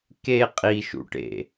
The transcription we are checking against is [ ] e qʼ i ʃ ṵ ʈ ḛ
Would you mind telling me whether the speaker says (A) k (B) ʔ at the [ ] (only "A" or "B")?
A